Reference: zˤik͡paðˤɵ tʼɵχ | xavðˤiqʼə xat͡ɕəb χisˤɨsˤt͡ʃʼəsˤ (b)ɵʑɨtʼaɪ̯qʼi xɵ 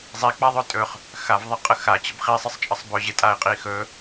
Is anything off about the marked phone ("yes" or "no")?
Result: no